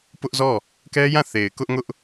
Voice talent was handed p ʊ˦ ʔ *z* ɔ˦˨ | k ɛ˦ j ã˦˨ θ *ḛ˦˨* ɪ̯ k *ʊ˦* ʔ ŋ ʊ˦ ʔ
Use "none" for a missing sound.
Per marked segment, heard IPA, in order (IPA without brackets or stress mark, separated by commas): z, e˨, ʊ˦